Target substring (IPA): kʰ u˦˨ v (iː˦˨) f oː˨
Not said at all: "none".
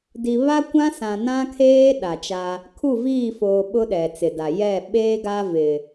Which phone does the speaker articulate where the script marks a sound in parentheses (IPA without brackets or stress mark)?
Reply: iː˦˨